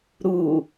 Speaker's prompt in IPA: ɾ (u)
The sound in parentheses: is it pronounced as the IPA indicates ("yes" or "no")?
yes